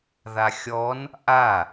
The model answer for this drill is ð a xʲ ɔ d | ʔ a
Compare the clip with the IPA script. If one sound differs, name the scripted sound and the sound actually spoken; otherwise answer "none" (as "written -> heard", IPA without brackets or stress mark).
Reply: d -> n